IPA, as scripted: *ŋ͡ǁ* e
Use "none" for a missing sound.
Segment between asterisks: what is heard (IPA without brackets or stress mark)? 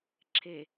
ǁʰ